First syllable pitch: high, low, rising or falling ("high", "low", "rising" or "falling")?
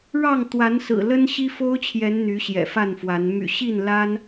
falling